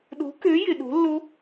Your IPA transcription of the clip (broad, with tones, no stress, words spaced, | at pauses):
ɗo̤˨˥kø˨˥ jɪ˨ɗo̤˨˥lːo˦˥